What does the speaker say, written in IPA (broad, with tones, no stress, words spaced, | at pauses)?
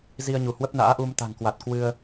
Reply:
zi˧ə̯ɲu˧˩hwə˦˥p̚ na̰ː˧˥ʔu˧m t̪a̤˨˩ŋkwa˨˩t̚ kwɨ˧ə̯